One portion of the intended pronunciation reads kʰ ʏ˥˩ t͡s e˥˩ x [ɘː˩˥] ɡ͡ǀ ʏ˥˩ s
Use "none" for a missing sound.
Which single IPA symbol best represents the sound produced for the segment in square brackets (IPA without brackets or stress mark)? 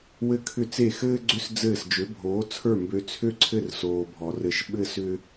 ɘː˥